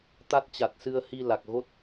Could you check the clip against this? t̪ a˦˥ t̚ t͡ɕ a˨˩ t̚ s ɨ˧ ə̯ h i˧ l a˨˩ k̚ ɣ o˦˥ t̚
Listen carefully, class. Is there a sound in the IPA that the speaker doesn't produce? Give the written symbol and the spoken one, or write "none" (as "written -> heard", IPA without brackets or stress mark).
none